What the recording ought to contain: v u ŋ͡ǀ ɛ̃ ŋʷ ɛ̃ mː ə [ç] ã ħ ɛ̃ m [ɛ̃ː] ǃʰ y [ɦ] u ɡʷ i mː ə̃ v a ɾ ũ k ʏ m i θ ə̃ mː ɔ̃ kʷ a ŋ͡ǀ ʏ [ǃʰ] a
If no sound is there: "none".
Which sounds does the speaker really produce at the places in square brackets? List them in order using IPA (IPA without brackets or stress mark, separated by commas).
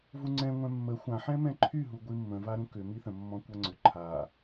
xʷ, ɛ̃, ɦ, ǃʰ